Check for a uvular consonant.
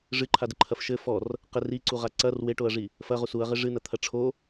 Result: present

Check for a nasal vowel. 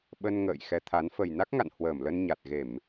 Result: absent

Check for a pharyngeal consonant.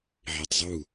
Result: present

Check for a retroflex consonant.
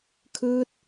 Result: absent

